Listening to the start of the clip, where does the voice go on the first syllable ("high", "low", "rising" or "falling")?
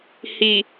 low